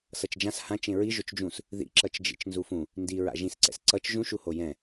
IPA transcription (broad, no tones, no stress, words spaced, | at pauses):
sʌt͡ʃd͡ʒãs hã t͡ʃẽɹi ʒot͡ʃd͡ʒũs | ðḭǁʌt͡ʃd͡ʒḭt͡ʃ nzufũ | ndi ɹa̰ʒĩsǀɛ̰s ǀʌt͡ʃ ʒũʃuho jɛ̃